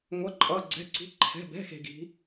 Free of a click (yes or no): no